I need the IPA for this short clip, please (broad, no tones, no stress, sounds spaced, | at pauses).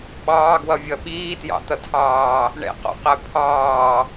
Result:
ɓ ɑː ɡ w ʌ vʲ ʌ ɓ iː t j ɑ̰ t̪ ʌ tʰ ɑː | ɳ ɛ̰ q ɔ̰ q æ pʰ ɑː